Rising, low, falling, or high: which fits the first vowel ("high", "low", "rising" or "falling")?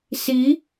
rising